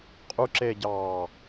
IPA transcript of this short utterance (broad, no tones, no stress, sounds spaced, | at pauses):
qʼ u ǁ eː ɟ ɑː